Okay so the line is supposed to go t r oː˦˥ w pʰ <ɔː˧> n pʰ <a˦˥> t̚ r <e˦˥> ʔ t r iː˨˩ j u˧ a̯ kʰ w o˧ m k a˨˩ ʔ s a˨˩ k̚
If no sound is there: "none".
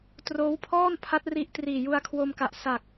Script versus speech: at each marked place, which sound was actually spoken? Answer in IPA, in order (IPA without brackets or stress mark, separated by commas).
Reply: ɔː˥˩, a˦˥, i˦˥